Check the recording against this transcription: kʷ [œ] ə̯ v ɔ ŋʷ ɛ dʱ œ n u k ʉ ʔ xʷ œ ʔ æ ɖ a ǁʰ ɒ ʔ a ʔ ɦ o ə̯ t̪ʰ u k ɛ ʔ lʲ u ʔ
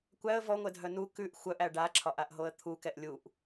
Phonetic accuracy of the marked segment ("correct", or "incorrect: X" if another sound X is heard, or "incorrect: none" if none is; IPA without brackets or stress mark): incorrect: æ